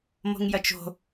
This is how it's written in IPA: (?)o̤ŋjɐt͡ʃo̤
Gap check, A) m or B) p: A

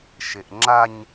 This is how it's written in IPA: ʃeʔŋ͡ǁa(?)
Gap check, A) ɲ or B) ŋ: A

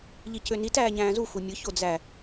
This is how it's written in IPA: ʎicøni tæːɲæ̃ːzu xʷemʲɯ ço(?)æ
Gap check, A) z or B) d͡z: B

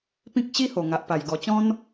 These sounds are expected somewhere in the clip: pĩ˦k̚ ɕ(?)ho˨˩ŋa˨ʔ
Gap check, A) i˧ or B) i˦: B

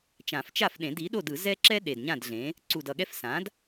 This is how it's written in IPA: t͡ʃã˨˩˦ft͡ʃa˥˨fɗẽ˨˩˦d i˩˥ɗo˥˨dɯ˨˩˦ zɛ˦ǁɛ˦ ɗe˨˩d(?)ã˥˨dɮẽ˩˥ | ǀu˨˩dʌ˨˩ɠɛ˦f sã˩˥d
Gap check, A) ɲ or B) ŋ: A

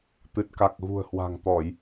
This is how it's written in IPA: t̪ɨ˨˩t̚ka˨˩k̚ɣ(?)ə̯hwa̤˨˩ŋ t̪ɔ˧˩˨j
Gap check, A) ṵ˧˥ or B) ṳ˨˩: B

